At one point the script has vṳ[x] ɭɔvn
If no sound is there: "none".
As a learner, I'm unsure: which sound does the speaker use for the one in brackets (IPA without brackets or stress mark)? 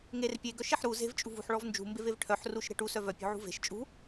ħ